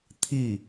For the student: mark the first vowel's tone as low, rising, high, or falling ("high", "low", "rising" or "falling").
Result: falling